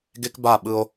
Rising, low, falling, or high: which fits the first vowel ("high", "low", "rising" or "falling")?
high